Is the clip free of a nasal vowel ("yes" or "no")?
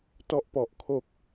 yes